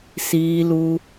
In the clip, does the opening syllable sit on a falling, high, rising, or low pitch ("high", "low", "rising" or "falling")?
low